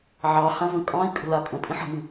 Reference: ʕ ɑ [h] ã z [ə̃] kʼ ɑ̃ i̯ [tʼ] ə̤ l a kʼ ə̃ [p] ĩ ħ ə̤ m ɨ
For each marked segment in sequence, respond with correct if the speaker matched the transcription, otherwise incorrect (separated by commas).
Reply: correct, correct, incorrect, incorrect